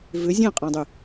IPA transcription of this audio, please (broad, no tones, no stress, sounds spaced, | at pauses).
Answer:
v ʏ zʲ ẽ qʼ ã dˤ y